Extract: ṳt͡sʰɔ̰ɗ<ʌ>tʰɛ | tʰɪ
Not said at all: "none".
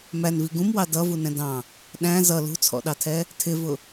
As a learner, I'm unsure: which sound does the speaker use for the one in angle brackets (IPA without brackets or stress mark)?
ɑ